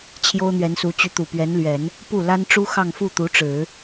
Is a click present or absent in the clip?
absent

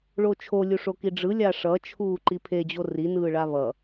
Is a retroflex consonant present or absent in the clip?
present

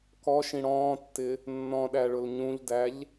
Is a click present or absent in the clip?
absent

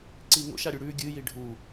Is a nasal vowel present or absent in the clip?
absent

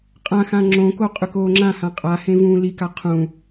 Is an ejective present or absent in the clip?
present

